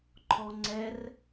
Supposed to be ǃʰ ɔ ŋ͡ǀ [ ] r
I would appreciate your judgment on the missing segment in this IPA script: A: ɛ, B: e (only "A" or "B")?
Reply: A